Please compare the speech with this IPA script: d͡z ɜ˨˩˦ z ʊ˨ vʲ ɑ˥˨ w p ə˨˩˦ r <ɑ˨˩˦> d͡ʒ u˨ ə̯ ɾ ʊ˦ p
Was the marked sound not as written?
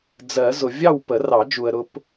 no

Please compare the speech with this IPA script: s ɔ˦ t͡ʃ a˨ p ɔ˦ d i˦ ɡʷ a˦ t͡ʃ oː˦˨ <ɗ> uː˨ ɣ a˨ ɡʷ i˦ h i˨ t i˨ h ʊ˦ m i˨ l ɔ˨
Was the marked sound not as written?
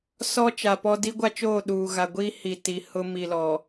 no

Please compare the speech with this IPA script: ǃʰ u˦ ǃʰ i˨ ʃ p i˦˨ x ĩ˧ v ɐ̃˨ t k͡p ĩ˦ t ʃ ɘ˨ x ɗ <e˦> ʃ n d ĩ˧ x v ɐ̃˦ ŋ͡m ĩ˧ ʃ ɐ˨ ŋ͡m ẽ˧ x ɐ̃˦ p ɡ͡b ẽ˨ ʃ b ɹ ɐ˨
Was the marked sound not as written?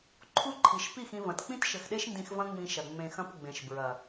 no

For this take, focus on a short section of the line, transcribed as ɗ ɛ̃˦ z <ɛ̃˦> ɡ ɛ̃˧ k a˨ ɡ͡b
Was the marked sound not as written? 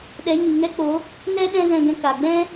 yes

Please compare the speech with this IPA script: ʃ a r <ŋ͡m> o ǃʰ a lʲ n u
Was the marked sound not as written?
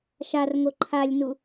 yes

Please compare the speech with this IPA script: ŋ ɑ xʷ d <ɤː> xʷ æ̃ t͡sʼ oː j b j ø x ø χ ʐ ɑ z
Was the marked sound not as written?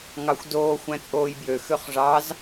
yes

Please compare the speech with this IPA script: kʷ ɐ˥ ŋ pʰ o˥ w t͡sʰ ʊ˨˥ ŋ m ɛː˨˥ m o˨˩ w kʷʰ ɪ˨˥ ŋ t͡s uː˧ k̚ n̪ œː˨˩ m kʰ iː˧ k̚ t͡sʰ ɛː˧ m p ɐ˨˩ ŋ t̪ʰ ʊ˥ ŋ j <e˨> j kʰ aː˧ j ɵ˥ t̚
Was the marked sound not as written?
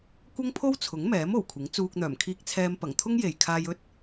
no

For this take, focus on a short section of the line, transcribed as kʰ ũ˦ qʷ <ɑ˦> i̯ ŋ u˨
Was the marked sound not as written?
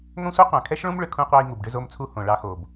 no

